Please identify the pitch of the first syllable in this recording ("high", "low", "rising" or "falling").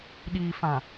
low